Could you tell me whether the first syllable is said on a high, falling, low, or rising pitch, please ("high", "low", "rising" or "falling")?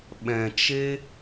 low